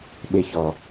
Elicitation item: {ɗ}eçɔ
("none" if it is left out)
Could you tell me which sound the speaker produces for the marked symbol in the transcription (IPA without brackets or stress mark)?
ɓ